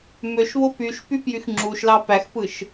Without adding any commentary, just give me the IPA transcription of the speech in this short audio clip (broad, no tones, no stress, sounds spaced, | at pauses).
m ø ʃ β o p y ʃ p y p j y x ŋ͡ǁ u ʃ l ɑ p æ x p ɯ ʃ